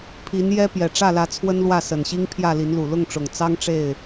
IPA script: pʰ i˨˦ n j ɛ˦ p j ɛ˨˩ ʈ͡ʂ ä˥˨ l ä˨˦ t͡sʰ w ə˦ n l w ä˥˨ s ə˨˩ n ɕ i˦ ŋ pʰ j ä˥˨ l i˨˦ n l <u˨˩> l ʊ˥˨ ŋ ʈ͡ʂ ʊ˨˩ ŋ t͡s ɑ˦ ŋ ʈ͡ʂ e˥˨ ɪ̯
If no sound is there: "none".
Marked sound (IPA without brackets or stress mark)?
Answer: u˨˩